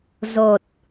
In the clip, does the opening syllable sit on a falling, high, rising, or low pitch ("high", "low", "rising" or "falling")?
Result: low